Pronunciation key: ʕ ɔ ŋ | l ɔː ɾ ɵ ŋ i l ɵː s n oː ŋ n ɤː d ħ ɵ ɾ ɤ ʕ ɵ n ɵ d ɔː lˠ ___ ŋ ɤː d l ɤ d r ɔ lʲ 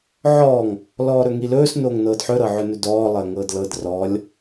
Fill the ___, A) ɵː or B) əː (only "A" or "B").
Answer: B